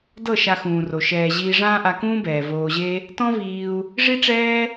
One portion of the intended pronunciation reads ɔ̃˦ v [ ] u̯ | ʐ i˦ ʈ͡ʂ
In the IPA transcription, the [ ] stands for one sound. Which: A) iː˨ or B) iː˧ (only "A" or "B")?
B